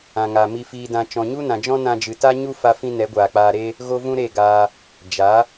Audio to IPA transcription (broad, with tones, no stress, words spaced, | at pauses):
ã˨ŋa˨ mi˧fiː˧dã˧ t͡ʃɔ̃˨ɲu˦nã˨d͡ʒɔ̃˦ nã˧d͡ʒɨ˨ ta˦ ɲu˦fa˧fĩ˧ nɛ˨˦ɡʷaː˨k͡paː˧ɾe˦ | ɣo˦vũ˦ ɾe˦˨ɡaː˧ | d͡ʒa˨˦